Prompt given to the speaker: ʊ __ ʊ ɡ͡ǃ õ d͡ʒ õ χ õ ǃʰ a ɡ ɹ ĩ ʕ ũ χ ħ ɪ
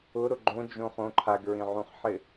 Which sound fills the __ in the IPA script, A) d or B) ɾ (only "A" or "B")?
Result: B